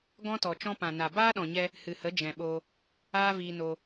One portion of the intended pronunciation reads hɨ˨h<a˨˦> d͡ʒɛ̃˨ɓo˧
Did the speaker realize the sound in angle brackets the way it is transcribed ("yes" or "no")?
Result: no